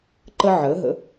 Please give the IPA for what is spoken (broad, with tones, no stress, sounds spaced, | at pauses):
ǃ ə˧ ʕ əː˩˧ ɦ ə̰˩˧